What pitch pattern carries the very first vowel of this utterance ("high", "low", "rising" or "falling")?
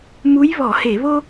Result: rising